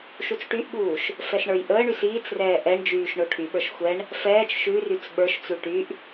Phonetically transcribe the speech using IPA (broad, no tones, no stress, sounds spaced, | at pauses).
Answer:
ʃ u t͡s ʈ y ʔ ɠ uː ʃ | f ɛ s ɳ ə˞ j ʔ əː ɳ y s iː t͡s r ɛː ʔ ɛ ɳ d͡ʒ yː ʃ ɳ o ʈʰ y ɓ ə˞ ʃ xʷ ɛ ɳ | f ɛː t͡ʃ ʃ ʉ r y t͡s ɓ ə˞ ʃ t͡s u ʈ y ʔ